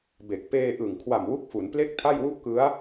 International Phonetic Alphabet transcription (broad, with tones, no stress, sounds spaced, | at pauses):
b e˨˩ k̚ p eː˧ ʔ ɯ˨˩ ŋ kʰ w a˨˩ m w u˦˥ k̚ f u˩˦ n p l e˥˩ k̚ tʰ a˥˩ j w u˥˩ ʔ k ɯ˦˥ a̯